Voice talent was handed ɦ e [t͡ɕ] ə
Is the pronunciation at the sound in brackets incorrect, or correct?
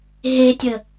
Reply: incorrect